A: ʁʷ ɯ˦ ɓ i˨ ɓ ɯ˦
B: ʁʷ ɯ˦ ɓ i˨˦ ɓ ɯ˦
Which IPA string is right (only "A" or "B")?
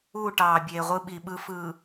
A